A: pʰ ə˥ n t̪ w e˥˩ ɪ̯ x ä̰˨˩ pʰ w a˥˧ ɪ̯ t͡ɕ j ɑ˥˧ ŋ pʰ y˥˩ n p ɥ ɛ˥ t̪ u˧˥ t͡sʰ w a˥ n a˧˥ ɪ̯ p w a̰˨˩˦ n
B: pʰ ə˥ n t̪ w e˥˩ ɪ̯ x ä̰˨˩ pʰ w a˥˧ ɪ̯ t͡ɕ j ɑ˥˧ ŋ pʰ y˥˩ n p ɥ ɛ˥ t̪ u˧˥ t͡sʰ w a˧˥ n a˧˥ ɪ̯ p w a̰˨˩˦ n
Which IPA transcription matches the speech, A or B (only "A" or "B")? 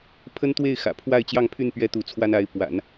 A